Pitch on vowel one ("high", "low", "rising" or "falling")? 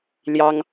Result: high